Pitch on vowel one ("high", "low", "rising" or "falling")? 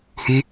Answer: high